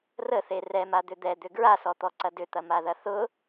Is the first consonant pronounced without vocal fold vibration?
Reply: no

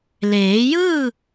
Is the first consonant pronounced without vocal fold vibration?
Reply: no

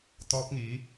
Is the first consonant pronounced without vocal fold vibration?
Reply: yes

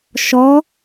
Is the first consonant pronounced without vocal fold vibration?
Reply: yes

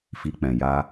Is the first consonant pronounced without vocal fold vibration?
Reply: yes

